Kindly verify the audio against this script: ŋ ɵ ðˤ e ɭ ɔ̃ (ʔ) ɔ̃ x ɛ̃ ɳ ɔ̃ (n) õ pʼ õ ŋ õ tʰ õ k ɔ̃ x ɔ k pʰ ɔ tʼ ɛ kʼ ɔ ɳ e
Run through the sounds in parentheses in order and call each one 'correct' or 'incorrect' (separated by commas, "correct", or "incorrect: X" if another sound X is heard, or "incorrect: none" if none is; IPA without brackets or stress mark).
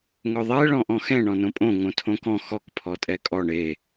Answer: correct, correct